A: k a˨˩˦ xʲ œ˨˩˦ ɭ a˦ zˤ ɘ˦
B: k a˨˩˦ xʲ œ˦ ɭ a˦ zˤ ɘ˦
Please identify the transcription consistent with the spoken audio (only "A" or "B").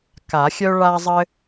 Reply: B